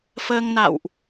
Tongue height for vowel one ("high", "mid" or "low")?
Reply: mid